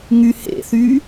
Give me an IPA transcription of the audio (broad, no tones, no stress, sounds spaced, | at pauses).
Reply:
ŋ y h ḛ θ y